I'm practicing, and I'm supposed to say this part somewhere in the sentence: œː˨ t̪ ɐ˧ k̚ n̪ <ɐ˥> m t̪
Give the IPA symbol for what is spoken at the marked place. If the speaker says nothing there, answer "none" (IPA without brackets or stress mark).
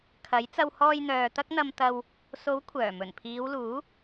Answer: ɐ˨